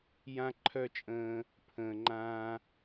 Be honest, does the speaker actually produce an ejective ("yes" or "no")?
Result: yes